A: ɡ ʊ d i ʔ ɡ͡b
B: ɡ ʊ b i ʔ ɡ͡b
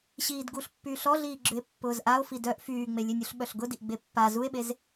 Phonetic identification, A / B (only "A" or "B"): A